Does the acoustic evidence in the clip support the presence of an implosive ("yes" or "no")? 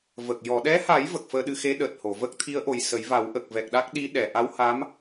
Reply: yes